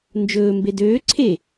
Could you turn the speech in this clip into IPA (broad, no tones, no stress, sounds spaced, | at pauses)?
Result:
n d͡ʒ ɵː m b e d øː ǀʰ e